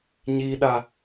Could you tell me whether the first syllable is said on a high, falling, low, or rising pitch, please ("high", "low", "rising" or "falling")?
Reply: high